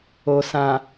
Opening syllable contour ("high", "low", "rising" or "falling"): low